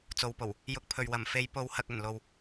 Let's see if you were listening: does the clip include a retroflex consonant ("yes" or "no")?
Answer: no